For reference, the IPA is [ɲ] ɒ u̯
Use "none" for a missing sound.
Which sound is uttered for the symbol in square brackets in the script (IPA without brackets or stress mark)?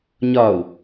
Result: ɲ